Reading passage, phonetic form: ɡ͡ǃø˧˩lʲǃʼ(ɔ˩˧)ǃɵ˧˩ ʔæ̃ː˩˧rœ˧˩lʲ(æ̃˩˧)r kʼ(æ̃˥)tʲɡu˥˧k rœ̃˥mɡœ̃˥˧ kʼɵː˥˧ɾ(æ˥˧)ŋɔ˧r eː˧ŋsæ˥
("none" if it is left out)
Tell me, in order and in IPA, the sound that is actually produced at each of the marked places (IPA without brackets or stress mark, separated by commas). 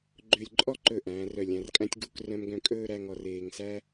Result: ɔ˥˧, æ̃˩˧, æ̃˥, æ˥˧